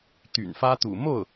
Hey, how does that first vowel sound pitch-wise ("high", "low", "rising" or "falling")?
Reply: low